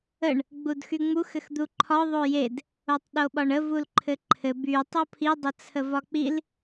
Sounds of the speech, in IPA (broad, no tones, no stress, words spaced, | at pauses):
əɳ | ɡ͡budxyŋ͡mux ɘxd̪uǃʰɒ ðˤojed | otˤɗoɓɒɳə vulǃʰɘǃʰɘ by tˤopʰi dˤət͡sʰəvɒk͡pil